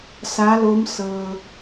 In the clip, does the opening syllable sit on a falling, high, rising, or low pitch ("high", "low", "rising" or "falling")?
rising